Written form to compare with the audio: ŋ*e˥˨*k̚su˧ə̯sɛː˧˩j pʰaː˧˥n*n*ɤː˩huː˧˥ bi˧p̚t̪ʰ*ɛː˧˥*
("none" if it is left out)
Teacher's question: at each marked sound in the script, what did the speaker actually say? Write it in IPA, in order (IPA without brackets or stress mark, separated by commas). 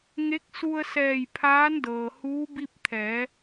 e˧˥, d, ɛː˩˧